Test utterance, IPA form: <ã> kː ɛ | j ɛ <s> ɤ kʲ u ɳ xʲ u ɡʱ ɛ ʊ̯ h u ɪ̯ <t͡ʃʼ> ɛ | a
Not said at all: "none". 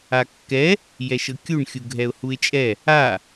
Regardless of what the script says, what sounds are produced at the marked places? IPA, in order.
a, ʃ, t͡ʃʼ

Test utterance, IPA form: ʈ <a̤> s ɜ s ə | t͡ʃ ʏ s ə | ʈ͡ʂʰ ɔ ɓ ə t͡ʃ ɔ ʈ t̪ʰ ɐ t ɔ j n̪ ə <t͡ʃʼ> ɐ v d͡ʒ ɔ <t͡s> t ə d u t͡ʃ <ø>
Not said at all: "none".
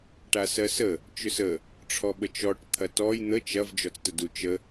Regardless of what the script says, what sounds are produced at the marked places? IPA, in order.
a, t͡ʃ, t͡s, ə

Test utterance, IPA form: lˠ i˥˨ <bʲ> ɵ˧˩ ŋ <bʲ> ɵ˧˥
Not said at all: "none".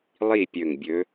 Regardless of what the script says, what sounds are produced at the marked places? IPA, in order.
pʲ, bʲ

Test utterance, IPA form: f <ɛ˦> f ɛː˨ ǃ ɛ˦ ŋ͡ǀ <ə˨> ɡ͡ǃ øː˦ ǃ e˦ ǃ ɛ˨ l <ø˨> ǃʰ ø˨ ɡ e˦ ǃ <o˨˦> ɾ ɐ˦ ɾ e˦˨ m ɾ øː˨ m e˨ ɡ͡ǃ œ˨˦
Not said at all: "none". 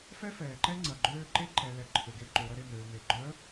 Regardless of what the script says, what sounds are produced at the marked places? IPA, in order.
ɛ˦, ɐ˨, ɛ˨, o˨˦

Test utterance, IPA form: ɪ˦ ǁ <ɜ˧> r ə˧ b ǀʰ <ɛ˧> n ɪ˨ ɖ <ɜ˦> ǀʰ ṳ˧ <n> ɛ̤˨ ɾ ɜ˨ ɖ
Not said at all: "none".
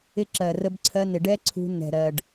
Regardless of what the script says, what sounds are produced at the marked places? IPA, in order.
ɜ˨, ɜ˧, ɛ˦, n

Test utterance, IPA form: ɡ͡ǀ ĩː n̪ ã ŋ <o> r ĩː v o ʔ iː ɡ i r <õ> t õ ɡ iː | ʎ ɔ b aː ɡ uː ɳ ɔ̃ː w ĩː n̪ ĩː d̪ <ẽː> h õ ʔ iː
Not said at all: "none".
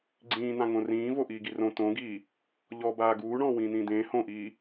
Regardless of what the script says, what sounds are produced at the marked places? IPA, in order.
õ, õ, ẽː

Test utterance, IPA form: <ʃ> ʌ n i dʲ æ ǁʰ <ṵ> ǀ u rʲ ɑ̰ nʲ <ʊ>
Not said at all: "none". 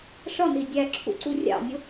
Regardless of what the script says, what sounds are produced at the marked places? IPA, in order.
ʂ, ṵ, ʊ

